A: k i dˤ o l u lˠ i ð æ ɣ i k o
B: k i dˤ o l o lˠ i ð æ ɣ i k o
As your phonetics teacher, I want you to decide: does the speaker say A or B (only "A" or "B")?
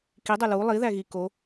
A